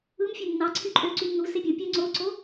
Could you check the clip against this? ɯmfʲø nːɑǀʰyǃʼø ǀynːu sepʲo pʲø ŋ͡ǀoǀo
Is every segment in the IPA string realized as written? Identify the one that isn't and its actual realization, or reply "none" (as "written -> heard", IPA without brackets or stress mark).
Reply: none